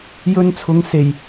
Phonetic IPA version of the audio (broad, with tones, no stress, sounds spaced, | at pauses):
j ɵ˧ n t͡sʰ ʊ˨˧ ŋ s e˨˩ j